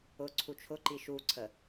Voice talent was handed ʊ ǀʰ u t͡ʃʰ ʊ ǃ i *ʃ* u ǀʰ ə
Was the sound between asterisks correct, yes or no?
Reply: yes